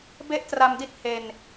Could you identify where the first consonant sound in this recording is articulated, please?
labial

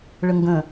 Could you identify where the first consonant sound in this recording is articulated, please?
retroflex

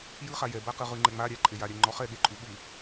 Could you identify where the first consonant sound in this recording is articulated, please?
palatal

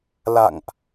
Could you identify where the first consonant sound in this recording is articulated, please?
alveolar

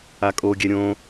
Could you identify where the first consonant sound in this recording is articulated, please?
velar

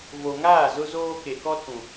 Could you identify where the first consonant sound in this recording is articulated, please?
labial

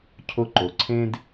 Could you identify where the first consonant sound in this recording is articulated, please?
palatal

